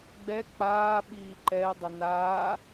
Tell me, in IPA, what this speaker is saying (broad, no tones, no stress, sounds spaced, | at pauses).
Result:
ɡ͡b ɛ k͡p aː ɓ iː ǃ ɛ ɪ̯ dˤ ɪ n aː